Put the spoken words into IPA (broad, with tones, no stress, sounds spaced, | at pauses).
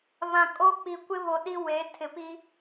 β ã˨ kʼ o˦ k͡p i˨ kʷ ɪ˦ β o˨ ɗ i˦ w e˨˦ tʰ ɪ˨ p i˦